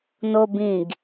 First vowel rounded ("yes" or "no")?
yes